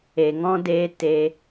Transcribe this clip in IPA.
e˨ ŋ ɔ̃˦ d eː˦ t e˧

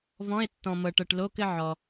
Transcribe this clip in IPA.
v ɔ̃˧˥˧ e̯ tː ɔ̃˨ m ɤ˨ ʈ ɤ˨ ʈ l o˧˥˧ k ɘ˥˧ ʕ ɔ˨

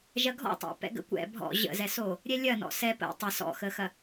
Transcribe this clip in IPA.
ʒ ɐ ɡʱ ɔ̰ tˤ ɛ̰ p ɛ̰ ɡ ə̰ kʷ ɛ̰ bʱ ɔ̰ ʑ ə̰ z ɛ s o | ɾʲ ɛ lʲ ɐ n ɔ̰ s ɛ p ə̰ tˤ ɐ s ɔ̰ x ə x ɐ

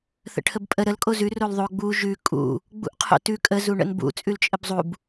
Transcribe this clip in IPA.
θ ə̰ ʈʰ ə b pʼ ə ɾ ə l kʼ o z ʉ r o l ðˤ o ɡ͡b u ʒ ʉ kʼ ṵ | ɡ͡b ṵ ʔ qʰ o̰ t ʉ kʼ ə z u ɳ ə̰ n b ṵ t͡sʼ ʉ l t͡ʃʼ ə b zˤ u b

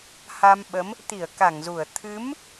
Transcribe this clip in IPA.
h a˧ m ɓ ə˨˦ m | t̪ i˧˩ ə̯ k a˧˩ ŋ z u˧˩ ə̯ t̪ʰ ɨ˨˦ m

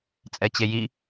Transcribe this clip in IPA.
t͡sʼ ɛ t͡ɕ e j i

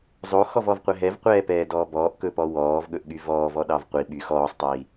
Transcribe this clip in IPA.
zˤ o x ɔ v ɔ v qʷ ɛ ɦ ɛ v qʷ ɛː p ɛː d ɔː b ɔː ʔ k ɵ p ɔ w ɔː v ɠ ɵ ʔ ɠ y v ɔː v ɔ ɗ ɑ v qʷ i ɓ y x ɔː sˤ tˤ iː

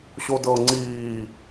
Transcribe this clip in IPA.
ɕ o d ɤ ŋ͡ǀ iː

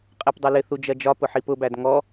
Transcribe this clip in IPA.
qʼ ɛ p dˤ ʌ l ɪ θ u d͡ʒ ɜ d͡ʒ ɒ p ʊ ħ i p ʊ b æ d ŋ ɔ

